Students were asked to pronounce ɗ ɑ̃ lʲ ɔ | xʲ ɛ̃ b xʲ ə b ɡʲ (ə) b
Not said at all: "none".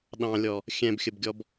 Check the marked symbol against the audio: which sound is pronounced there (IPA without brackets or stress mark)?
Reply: ɔ